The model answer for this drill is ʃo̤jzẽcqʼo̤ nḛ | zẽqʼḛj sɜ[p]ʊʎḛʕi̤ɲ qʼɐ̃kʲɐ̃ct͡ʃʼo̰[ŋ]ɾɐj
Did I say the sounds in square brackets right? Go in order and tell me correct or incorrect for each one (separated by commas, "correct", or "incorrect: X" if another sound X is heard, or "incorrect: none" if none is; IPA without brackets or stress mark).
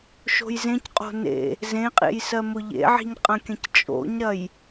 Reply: incorrect: m, incorrect: ɲ